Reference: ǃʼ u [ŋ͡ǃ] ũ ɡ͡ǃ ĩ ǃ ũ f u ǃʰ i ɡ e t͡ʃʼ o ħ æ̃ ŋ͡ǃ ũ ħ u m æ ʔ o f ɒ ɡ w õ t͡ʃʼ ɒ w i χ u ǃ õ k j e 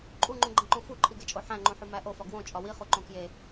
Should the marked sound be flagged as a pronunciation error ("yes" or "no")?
no